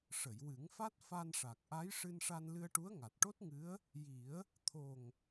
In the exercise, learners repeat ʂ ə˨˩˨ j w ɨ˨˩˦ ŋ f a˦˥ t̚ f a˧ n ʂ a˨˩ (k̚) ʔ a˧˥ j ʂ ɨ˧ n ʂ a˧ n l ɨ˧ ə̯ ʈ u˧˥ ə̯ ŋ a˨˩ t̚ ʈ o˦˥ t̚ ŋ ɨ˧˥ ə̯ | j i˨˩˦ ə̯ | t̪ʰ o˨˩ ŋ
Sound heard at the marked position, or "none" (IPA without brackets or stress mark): k̚